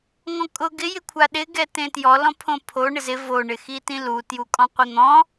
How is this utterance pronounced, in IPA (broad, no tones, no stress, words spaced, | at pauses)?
ŋɔ̃kʼʊ ɡɪ jɪkʷʰaɗɪ ɡɛtẽtjɔ lɔ̃pʰõpʰo ɳɪzɪ vo ɳɪxitĩlu tjukʼɔ̃qʷin̪ɔ̃